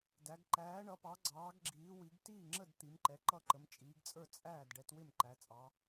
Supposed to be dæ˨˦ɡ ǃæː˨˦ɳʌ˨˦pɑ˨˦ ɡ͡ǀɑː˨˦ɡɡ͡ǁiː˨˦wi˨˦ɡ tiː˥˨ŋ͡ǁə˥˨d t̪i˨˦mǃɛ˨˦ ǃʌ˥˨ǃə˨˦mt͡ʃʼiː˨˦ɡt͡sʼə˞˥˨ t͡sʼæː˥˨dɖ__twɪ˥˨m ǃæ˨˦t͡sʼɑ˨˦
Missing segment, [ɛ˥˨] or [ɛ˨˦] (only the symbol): ɛ˨˦